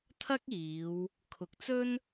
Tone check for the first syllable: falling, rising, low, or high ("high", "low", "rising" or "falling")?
high